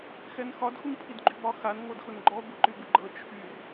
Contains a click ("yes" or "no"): yes